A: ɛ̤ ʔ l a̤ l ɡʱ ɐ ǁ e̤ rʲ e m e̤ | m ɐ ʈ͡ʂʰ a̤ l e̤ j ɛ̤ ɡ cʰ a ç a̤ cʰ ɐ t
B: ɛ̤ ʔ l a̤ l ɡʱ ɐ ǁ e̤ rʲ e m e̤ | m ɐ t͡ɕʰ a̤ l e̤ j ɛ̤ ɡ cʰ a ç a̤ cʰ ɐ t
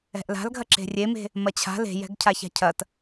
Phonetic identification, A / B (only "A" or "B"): B